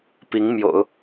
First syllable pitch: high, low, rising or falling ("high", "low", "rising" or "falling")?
rising